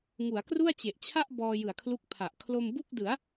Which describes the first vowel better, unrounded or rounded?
rounded